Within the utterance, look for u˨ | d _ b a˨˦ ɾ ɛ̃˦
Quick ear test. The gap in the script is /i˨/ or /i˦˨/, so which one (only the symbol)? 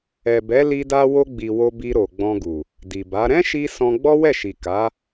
i˨